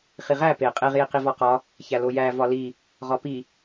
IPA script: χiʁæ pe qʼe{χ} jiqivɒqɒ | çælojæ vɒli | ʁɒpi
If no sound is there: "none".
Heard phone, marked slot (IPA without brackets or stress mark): ʁ